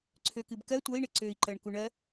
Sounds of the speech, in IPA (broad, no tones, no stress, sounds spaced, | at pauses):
ǀʰ ø k ɨ b k ɜ tʷ ɜ i̯ ɳ ɪ ǀ ø i̯ ǃ ɜ ɳ k u ɳ ɜ